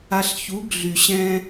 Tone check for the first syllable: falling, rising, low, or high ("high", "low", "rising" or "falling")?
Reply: low